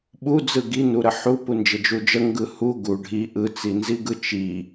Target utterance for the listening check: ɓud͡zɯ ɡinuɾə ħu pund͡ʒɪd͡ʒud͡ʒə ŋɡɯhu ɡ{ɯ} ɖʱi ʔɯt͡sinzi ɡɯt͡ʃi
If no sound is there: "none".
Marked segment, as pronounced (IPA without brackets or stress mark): u